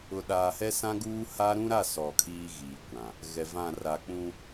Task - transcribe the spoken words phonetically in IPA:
ʊ˨ɗaː˨hɛ˦ sã˦ɡuː˦ ha˦ ɾũ˦ɾa˦˨ sɔ˨ kʰiː˦ɣiː˨ kʷã˨ | ɣɛ˨vã˦˨ ra˨k͡pũ˦

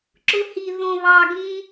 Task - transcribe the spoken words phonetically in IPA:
ǁʊ˧hi˨˩ ðõ˨˩βɑ˨˩ ɡĩ˧

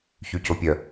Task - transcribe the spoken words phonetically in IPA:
çycopʲœ

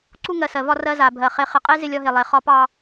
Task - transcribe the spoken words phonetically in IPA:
ǀu˦ŋɜ˨sɜ˨vɒ˦ rɜ˦za˨bʱɜ˨ χe˨χɪ˨qʼe˦ zɪ˦lʲɒ˦ɦe˨ lˠe˨ χɒ˦pɑ˦

